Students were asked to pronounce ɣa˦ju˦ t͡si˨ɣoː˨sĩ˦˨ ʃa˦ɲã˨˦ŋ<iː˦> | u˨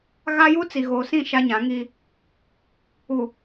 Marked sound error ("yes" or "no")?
no